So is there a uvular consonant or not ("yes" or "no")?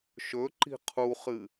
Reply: yes